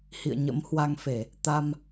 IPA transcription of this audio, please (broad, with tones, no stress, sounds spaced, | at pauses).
h ḭ˧˨ ə̯ ɲ ə̰˧˥ m h w a˧ ŋ f e˧˩˨ | t̪ a˧ m